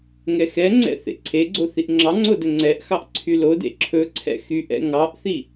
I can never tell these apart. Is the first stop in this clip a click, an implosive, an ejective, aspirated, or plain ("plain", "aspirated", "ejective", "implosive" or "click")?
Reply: click